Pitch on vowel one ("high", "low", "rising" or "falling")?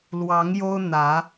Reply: rising